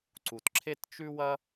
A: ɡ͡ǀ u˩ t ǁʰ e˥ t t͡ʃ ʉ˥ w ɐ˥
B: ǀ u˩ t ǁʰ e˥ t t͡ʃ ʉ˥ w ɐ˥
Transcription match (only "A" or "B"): B